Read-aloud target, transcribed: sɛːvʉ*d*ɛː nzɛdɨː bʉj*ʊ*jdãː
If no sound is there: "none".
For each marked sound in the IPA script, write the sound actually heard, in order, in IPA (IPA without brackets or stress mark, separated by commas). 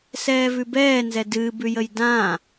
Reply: b, ə